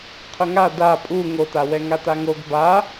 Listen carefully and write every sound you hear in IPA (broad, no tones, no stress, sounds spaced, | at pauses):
qʰ ʊ ŋ a d a pʼ u ŋ o t a w ɛ ŋ a t a ŋ o ɡ b a